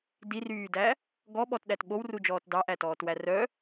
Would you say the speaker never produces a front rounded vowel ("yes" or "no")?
no